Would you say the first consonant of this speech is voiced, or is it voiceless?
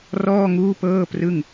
voiced